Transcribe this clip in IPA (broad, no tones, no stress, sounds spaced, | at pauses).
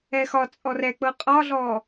ɛ x ɒ t͡sʼ ɔ r ɛ k͡p ɤ qʼ ɒ ɮ ɔ